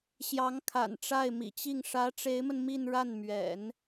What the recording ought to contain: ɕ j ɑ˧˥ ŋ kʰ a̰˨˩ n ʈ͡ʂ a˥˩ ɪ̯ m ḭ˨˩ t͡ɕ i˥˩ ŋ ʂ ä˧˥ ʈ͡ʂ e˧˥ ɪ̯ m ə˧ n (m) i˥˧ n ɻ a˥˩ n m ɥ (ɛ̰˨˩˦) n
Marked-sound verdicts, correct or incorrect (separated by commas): correct, correct